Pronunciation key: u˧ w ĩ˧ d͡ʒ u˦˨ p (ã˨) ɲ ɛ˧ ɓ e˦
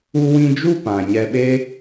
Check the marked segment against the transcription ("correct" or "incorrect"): correct